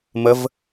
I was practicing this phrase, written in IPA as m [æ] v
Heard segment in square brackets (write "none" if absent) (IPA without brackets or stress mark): ə